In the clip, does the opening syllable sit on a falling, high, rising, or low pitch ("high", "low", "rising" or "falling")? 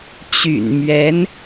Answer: low